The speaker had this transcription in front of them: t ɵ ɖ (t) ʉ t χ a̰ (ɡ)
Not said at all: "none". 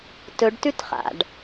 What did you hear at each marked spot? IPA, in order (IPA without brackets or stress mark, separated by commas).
t, ɖ